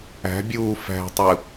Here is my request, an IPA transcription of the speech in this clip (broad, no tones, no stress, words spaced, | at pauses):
æ̤bʲuː fæ̤tˤɯ